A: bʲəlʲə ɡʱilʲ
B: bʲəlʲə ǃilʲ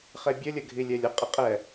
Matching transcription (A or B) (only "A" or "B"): A